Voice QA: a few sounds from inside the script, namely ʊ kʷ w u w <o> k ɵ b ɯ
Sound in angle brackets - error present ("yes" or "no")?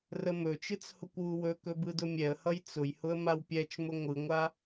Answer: yes